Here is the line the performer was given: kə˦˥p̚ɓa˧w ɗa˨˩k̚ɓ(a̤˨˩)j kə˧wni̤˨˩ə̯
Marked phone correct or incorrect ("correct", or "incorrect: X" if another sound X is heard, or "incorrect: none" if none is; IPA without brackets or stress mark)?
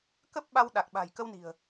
correct